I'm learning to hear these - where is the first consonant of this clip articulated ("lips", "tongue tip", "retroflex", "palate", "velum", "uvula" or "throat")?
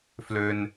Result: lips